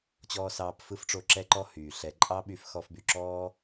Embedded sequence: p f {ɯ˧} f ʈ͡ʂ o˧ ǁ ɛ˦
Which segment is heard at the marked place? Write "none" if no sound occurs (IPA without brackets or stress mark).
ɯ˧